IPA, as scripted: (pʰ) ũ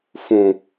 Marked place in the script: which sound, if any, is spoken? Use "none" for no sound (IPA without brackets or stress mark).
f